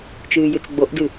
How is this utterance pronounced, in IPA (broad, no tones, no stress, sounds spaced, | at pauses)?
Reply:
t͡ʃ ɨː j ɨ t͡s ɡ͡b o ʔ d ɨ